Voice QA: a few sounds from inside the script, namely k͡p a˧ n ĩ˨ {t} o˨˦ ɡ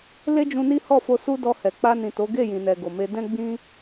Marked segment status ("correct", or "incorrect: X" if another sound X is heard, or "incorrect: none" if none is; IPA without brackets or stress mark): correct